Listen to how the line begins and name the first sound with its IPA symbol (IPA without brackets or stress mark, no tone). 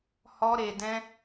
h